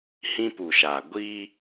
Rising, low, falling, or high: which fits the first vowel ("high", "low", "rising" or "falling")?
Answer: high